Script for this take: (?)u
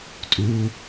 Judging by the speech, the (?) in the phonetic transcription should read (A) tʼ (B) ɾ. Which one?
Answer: A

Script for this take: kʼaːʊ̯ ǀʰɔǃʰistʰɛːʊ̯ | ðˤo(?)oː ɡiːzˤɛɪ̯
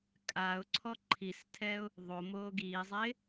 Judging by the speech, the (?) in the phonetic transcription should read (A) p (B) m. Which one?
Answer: B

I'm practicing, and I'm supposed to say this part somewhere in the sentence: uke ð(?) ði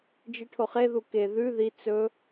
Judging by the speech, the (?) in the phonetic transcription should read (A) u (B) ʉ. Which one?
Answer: B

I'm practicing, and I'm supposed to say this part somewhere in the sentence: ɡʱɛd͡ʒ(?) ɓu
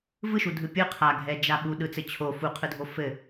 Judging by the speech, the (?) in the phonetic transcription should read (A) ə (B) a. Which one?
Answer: B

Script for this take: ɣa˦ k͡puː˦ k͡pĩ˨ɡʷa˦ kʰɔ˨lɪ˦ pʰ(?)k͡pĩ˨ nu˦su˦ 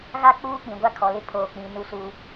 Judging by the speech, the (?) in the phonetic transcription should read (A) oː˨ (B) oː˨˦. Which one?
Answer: A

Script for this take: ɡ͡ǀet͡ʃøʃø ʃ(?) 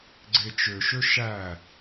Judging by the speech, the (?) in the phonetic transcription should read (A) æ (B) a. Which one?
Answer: A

